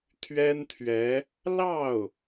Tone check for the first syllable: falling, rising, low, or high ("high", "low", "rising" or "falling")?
high